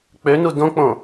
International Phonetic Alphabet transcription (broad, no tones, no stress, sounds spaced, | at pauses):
k͡p ø n u d õ k͡p õ